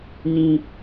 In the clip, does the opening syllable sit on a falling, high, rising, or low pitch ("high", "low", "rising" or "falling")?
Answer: high